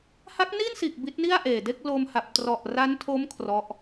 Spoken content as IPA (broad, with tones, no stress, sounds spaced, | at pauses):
h a˦˥ k̚ n i˥˩ n s iː˨˩ k̚ b i˦˥ t̚ n i˥˩ a̯ ʔ eː˨˩ d e˥˩ k̚ l o˧ m h a˨˩ p̚ t r ɔ˨˩ ʔ r a˦˥ n tʰ o˦˥ m kʰ r ɔ˦˥ ʔ